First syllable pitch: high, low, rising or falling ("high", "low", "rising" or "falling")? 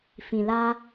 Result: low